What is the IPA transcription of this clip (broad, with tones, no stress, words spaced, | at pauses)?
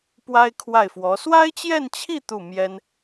pwa˥ɪ̯kʰwa˥˩ɪ̯fwɔ˧˥ swa˥ɪ̯t͡ɕjɛ˥˧nt͡ɕʰi˥˧ t̪u˥˩mjɛ˥n